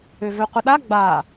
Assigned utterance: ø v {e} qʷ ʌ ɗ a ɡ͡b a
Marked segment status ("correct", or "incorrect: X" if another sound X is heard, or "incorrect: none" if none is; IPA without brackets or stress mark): incorrect: ø